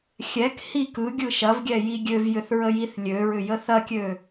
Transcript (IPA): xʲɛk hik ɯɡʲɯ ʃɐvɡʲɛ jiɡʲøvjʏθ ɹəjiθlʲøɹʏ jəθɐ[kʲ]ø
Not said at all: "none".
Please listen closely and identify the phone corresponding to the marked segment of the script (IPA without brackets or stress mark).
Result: kʲ